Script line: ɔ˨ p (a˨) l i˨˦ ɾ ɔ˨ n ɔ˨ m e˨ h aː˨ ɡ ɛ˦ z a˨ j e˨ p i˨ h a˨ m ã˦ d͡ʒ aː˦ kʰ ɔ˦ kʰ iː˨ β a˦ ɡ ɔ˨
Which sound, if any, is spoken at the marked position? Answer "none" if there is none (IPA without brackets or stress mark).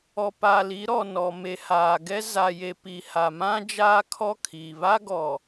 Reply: a˨